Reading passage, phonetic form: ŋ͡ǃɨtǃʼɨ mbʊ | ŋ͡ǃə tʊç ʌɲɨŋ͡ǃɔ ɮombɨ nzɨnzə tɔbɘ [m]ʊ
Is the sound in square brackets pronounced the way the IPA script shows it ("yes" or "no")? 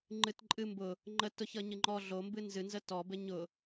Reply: no